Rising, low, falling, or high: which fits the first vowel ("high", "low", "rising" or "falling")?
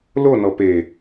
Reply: falling